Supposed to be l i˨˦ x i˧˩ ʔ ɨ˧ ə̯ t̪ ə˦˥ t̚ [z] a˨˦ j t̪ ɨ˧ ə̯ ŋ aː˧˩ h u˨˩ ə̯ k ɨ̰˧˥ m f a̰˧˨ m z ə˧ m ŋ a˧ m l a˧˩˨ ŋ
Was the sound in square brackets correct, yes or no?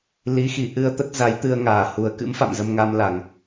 yes